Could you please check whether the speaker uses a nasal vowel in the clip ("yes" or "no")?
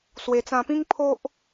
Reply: yes